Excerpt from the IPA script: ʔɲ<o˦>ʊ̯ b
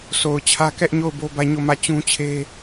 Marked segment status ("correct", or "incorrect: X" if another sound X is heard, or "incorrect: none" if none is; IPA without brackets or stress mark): incorrect: o˦˨